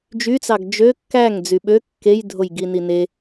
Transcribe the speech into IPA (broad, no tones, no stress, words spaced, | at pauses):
d͡ʒyt͡sɑɡ d͡ʒø kːæŋ d͡zyɓø kːejdʱoj ɡinine